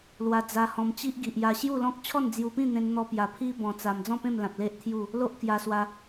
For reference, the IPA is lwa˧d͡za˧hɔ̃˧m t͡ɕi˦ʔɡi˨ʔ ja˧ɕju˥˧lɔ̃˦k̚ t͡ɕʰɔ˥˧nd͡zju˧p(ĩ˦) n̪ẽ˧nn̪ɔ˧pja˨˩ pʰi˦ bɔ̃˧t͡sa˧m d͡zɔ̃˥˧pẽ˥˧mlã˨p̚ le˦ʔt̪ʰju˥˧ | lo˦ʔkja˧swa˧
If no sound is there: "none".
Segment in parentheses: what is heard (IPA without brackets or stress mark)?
ĩ˥˧